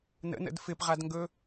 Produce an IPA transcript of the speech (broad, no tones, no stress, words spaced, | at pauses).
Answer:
nə̰nə̰d fɪpʁadŋɡɵ